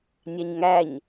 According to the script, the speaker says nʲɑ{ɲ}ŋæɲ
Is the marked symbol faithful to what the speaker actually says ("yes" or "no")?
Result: yes